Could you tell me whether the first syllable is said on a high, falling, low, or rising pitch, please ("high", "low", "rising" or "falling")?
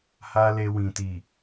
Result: high